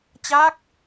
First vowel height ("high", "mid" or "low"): low